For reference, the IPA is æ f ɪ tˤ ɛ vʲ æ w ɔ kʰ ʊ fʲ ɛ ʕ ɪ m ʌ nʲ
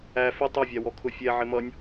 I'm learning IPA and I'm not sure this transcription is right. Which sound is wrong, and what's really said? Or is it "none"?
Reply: none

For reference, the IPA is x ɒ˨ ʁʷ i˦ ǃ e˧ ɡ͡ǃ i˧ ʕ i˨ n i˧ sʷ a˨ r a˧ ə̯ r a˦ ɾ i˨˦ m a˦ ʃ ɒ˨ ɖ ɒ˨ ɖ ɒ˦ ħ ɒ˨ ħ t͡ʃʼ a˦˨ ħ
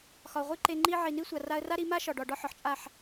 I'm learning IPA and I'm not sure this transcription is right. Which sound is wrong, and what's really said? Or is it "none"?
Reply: ɡ͡ǃ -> ŋ͡ǃ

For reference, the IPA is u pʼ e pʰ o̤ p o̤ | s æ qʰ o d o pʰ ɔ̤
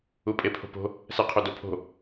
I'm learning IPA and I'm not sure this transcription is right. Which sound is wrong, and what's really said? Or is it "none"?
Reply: ɔ̤ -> o̤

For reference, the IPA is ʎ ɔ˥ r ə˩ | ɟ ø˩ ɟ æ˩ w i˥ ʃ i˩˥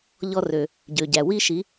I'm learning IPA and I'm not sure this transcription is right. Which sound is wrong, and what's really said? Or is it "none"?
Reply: ə˩ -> ø˩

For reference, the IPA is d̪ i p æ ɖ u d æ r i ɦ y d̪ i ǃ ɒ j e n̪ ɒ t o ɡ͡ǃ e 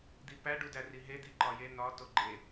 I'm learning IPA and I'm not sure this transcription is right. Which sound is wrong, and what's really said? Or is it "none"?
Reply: y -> e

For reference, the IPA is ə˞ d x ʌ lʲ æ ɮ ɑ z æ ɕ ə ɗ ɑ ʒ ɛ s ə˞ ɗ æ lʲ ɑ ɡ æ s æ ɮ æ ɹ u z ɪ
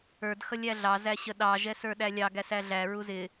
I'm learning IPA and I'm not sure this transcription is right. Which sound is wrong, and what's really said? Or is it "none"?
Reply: none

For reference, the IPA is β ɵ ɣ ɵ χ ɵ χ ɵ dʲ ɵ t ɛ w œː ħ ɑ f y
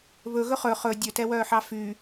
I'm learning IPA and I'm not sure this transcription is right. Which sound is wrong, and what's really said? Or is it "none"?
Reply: none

